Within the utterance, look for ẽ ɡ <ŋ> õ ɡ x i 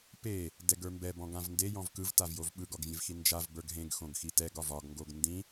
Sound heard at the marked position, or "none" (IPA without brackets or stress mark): x